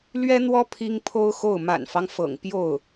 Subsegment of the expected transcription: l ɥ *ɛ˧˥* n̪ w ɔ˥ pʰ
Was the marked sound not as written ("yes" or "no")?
yes